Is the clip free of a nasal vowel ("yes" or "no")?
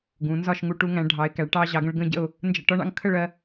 no